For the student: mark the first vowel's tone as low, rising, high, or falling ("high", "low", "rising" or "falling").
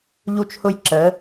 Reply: high